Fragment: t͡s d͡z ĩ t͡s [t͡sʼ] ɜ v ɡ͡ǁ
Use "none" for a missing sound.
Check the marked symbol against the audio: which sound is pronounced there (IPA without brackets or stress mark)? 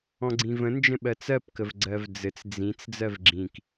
d͡z